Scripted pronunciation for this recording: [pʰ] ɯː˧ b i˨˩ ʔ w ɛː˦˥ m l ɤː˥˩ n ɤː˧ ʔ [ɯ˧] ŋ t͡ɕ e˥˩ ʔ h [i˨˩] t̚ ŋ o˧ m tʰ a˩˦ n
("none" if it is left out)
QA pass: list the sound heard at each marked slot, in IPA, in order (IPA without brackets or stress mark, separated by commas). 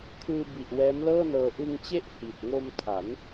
kʰ, ɯ˧, i˨˩